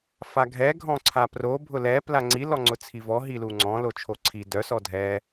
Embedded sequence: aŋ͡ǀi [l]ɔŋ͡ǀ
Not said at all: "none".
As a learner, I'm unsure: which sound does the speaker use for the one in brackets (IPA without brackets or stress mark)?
l